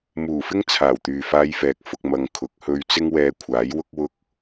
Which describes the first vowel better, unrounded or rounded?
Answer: rounded